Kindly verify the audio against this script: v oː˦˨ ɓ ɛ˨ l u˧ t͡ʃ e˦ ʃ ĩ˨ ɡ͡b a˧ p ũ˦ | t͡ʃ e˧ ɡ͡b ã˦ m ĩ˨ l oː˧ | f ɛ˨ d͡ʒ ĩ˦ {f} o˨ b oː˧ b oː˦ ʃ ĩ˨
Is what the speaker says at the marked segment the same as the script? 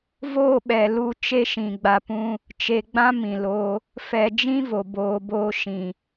no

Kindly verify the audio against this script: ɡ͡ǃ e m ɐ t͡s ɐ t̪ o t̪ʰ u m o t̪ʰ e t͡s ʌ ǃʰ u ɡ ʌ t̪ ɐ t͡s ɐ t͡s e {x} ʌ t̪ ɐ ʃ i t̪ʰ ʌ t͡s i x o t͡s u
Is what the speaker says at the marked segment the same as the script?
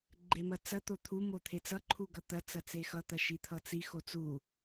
yes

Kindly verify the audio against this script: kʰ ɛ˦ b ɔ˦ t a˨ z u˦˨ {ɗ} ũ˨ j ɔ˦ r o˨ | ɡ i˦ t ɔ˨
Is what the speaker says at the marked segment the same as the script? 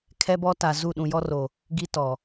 yes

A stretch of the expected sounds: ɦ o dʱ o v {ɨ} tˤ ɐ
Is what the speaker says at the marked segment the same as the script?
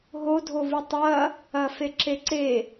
yes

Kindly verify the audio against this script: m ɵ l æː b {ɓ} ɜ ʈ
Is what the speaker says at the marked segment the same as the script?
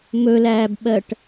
yes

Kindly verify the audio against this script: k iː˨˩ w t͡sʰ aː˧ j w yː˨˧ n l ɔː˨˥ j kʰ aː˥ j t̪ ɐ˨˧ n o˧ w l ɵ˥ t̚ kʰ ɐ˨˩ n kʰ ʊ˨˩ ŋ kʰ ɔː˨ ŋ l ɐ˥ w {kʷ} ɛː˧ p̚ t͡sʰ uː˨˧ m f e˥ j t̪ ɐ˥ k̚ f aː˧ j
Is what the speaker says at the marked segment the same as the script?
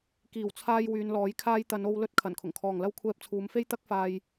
no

